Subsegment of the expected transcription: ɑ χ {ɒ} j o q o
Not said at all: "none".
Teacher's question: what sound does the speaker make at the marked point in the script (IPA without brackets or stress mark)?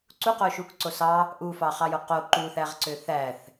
ɑ